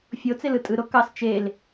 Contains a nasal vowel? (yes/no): no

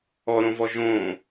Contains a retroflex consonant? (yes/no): no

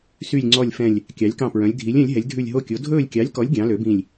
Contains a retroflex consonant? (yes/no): no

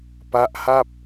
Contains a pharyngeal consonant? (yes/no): no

